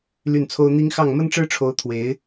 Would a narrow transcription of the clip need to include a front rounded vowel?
yes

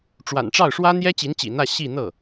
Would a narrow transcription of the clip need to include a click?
no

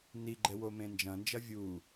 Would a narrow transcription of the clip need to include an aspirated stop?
no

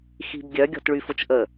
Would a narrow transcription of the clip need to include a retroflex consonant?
yes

